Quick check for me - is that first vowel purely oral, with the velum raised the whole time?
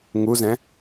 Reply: yes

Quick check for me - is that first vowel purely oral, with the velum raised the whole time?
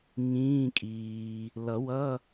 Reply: no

